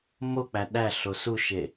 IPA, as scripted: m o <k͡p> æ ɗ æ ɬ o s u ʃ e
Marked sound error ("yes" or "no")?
no